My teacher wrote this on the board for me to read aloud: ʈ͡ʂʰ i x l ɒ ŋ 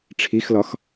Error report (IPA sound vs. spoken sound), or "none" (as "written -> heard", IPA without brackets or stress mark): ŋ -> x